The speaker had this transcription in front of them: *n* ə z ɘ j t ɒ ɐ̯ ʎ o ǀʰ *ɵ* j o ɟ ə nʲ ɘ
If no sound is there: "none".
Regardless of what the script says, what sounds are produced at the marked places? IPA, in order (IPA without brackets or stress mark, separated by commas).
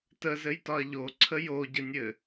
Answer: t, ə